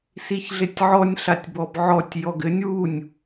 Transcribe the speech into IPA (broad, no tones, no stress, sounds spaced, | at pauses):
s i ç ɮ ɪ tʲ ʕ ɔ nʲ ɬ a tʲ b ɔ b ʕ ɔ tʲ j ɔ ɡ ɘ nʲ w u nʲ